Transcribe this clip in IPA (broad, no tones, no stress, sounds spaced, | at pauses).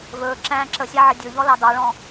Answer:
v ɵː ǁ æ̃ː ǁ ə sʲ æ ʕ ə dʲ ɵ ʎ ɔ l ɑ d ɑ ɭ ɔ̃